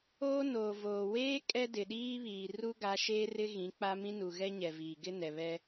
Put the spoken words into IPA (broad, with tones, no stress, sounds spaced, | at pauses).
oː˦ n oː˨ v oː˨ w eː˦ kʼ ɛ˦ d ɪ˨ ɗ iː˦ β iː˨ r u˦ ɡ a˨˦ ʃ eː˦ r ɪ˦ ɣ ĩ˨˦ k͡p a˦ m ĩ˦ n u˨ ɣ ɛ˦ ɲ ɛ˨ v iː˨ ɡ ɪ˦ n ɛ˨ β ɛ˦